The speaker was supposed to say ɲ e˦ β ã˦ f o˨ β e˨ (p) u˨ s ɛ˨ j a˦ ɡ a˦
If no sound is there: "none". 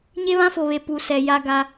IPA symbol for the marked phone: p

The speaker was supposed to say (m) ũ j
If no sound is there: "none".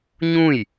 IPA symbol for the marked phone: ɲ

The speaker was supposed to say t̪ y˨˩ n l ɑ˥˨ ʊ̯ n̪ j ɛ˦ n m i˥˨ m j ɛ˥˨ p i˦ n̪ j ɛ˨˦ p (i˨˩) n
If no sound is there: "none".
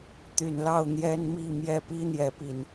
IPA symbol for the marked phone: i˨˩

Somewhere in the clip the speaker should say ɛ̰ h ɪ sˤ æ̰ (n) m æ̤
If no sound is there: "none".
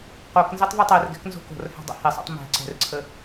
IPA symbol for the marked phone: tˤ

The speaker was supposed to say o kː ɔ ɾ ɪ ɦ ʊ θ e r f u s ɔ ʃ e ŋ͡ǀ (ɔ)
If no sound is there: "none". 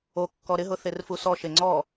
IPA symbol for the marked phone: ɔ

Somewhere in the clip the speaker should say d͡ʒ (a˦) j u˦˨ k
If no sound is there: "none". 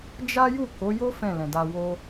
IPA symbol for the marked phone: a˦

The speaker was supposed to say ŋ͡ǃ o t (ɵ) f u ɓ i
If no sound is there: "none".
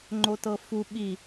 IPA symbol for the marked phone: ɤ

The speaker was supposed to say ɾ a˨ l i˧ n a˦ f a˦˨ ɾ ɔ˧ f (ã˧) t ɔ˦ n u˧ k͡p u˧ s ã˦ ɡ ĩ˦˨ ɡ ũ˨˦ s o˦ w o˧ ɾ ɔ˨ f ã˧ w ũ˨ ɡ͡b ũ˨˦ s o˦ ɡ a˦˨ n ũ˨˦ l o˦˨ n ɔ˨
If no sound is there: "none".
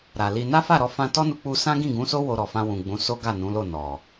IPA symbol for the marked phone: ã˧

